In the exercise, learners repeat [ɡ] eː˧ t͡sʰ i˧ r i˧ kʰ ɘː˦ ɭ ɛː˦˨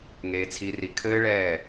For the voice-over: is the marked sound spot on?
no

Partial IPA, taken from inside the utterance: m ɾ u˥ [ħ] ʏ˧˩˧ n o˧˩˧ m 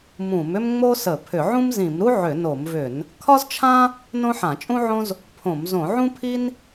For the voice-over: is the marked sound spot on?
no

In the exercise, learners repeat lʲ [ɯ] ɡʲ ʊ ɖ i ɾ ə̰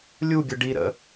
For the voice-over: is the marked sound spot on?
no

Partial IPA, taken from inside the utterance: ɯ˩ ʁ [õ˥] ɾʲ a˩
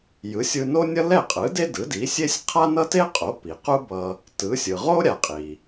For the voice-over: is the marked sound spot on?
no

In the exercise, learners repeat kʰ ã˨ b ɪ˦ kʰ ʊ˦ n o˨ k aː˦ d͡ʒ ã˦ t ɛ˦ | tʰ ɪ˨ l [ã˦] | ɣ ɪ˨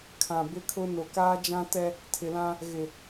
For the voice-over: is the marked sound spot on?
yes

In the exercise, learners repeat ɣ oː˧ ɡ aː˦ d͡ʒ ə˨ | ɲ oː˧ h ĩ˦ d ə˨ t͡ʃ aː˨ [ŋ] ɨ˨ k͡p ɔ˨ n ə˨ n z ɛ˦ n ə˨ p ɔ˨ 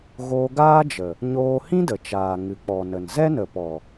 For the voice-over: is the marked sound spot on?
yes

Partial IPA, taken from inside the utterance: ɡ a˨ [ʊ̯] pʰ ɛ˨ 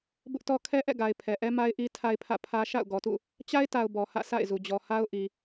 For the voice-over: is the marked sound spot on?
no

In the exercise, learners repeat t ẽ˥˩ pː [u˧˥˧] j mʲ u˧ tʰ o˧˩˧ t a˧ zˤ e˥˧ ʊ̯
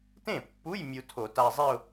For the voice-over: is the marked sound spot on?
yes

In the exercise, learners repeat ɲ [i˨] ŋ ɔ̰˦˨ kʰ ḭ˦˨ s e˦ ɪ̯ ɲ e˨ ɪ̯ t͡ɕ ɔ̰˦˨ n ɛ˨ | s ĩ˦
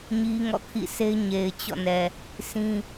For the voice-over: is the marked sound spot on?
no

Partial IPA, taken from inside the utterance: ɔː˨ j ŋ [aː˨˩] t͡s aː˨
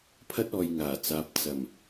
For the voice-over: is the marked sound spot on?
yes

